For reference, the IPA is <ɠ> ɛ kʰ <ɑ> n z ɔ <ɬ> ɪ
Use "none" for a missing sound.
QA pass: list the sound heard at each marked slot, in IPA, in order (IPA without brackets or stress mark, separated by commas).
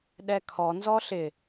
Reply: ɗ, ɔ, ɬ